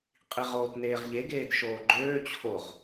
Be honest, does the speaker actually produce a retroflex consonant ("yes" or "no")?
no